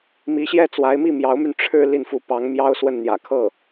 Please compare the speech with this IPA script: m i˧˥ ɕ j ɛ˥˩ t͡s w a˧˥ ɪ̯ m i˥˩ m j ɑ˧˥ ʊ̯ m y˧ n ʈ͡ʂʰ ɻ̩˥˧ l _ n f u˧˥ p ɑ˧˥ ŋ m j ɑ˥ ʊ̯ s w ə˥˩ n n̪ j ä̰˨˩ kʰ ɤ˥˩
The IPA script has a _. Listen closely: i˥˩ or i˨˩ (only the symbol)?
i˥˩